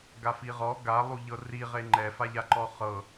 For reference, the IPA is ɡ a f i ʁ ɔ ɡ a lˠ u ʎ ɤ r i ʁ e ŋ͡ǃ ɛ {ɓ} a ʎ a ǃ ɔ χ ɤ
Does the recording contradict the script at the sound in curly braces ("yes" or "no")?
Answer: yes